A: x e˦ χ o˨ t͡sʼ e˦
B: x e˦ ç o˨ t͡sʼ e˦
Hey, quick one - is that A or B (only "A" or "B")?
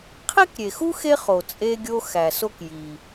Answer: A